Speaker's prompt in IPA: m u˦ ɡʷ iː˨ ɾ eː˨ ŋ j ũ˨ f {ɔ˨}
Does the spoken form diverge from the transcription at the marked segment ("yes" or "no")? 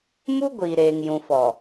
no